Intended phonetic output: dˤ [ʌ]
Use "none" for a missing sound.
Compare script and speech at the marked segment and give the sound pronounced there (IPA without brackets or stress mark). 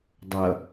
ʌ